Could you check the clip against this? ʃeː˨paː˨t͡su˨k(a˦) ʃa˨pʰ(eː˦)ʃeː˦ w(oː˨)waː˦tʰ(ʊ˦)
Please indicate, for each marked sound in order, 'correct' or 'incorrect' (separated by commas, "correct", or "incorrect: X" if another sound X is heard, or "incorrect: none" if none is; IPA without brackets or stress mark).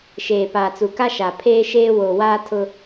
correct, correct, correct, correct